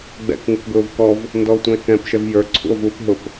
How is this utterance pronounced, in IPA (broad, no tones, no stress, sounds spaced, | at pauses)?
ɡ͡b ɛ̰ k ŋ u k ɡ ʊː v k ɔ v | n d ɔ o̯ tʷ ə̃ e̯ k ɛ̃ p ʃ ɛ v j ə˞ ǀʰ ṵ o̯ v uː p ɦ ʊ p